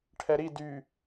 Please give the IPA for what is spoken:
ʈʰ ɛ ɾ i d y

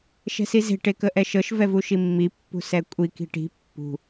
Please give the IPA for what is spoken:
ʃ ɛ̤ s i z e̤ ʈ e k ə ʔ ɛ ʃ ɤ ʃ v ɛ v u ʃ i mː i pː ṳ s ɛ kʷʼ i k i̤ ʈ i̤ pː ṳ

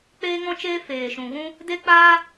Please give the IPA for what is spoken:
k͡p eː˦ ŋ ɔ̃˦ t͡ʃ eː˦ f eː˨ ʃ ũ˨ ɣ ũ˦ | d e˦ k͡p aː˦

